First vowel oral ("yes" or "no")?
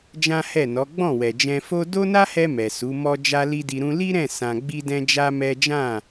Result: no